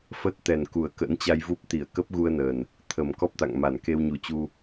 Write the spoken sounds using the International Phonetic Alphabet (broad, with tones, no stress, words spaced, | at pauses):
fə˦˥t̚t̪ɛ˨˩n ku˨˩ə̯kə̰ː˧˥nt͡ɕa˧jvu˦˥p̚ t̪i˧˩ə̯kə˦˥p̚ɣu˧ə̯ nə˨˩n | t̪ʰə˨˩mkɔ˦˥p̚t̪a̰˧˨ŋ ma˧˩nke˧wɲu˨˦t͡ɕu˧